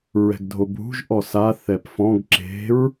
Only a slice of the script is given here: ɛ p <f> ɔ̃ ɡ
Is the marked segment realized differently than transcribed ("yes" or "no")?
no